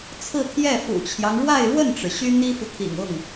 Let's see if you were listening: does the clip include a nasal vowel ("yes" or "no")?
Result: no